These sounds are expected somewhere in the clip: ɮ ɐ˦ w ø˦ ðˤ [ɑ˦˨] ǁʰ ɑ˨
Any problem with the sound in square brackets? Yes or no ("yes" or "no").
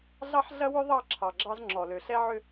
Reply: no